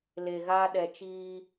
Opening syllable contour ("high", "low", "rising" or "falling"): low